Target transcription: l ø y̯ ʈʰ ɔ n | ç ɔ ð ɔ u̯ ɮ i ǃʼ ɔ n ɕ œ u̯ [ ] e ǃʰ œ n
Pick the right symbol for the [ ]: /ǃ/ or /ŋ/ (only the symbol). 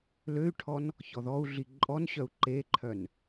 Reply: ǃ